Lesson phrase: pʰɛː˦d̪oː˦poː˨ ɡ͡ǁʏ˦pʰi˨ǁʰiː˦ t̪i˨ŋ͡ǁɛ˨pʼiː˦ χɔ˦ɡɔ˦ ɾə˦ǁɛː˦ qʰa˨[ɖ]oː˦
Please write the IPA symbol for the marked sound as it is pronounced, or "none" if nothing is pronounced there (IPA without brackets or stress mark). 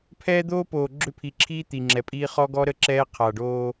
ɖ